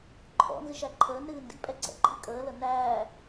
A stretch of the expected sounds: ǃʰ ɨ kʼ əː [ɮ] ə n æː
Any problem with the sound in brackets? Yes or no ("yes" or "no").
yes